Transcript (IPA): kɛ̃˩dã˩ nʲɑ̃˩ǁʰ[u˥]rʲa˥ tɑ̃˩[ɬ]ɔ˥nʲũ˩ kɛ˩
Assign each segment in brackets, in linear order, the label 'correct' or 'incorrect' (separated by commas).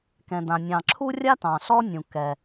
correct, correct